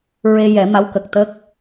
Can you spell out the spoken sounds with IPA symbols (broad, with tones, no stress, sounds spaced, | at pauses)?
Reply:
ɹ e˧ j ɛ˨˩˦ m a˧˥ w k ə˨˩ k̚ t̪ ə˦˥ k̚